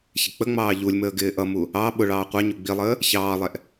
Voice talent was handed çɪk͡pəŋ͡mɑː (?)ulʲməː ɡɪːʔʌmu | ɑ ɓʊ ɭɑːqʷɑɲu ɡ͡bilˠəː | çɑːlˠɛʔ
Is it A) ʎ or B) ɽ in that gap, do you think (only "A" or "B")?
A